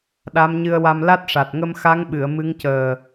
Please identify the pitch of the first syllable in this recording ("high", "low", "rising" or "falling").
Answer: rising